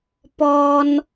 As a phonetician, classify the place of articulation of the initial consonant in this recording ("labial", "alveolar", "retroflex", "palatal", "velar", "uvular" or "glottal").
labial